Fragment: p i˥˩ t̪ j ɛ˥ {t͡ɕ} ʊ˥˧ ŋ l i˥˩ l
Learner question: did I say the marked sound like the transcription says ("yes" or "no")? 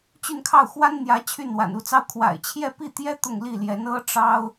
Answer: no